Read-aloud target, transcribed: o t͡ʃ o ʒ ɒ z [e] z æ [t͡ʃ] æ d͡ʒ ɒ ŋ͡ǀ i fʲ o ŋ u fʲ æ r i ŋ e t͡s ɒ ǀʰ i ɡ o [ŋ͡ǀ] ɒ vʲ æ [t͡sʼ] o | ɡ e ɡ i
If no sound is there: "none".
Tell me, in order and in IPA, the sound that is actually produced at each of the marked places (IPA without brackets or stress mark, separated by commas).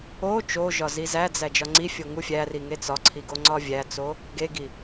i, d͡z, ŋ͡ǀ, t͡s